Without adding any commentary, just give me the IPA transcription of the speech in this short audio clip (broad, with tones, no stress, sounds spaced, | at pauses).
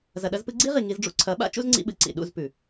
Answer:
z ɐ˨ ɗ ɐ˧ z p ɨ˧ ɡ͡ǀ i˦ ʁ i˨ ŋ i˧ z ɖ͡ʐ ṵ˦ ǀʰ ɐ˨˦ ɓ a̰˦ t͡ʃ ṵ˦ z ŋ͡ǀ ḭ˧ ɓ ɨ˨ ǀ ḭ˨ ɗ ṵ˦˨ z p ʉ˨